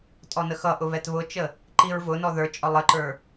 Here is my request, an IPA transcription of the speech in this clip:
tʼ ɔ n ə x ʌ ʔ ʊ β ɛ t β ʊ t͡ʃ ə | ǃ i ɹ v ʊ n ɔ ð ə˞ t͡ʃʼ ɔ lˠ ə ǃ ə˞

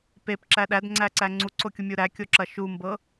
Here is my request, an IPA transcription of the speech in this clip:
p e p ǁ æ ɗ æ d ŋ͡ǀ æ ǀ æ ŋ͡ǀ u ǀ o kʲ u mʲ u ɾ æ kʲ o ǁ ɐ ʃ u m b ɤ

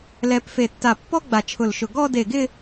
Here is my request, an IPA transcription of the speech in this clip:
l ɛ˧ p f e˧˩ tː a˧˩ pː ɔ˥ ɡ͡b a˧˩ t͡ʃʰ ʊ˧˩ l ʃ ʊ˧˩ ɡ ɔ˥˧ d e˧˩ ɡ ɪ˥˧

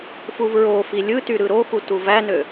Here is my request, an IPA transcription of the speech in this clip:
f u v ɹ o f i lʲ ɯ t y ɾ ɯ ɾ o x u t u v æ n ø

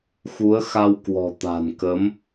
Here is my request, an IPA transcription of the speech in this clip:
x u˨˦ ə̯ x a˧ w k w ɔ̤˨˩ t̪ a̤˨˩ n k ə˨˦ m

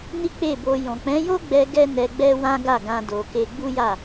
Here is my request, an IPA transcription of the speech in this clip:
n i˦ k͡p e˦˨ b o˧ j ɔ̃˨ k͡p ɛ̃˨˦ j o˦ ɡ͡b ɛ˧ ɡ ɛ˦ n ɛ˧ ɡ͡b ɛ˦ w ã˦ ɡ a˦˨ ɡ ã˧ d o˨ k e˧ ɡ͡b u˦ j a˦˨

